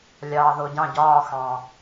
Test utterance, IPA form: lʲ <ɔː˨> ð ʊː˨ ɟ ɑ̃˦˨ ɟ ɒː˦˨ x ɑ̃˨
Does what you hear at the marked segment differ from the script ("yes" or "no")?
yes